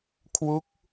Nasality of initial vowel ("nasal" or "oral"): oral